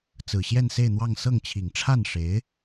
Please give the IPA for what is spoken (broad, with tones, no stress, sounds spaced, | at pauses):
t͡s ɹ̩˨˩ ɕ j ɛ˥˧ n s e˥˧ ɪ̯ n̪ w ɑ˥˧ ŋ s ɤ˥˩ ŋ t͡ɕʰ i˨˩ ŋ ʈ͡ʂʰ a˥˩ n ʂ e˧˥ ɪ̯